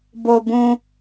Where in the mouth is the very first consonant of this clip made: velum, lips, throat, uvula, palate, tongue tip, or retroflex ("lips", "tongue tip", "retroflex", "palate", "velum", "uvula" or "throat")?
lips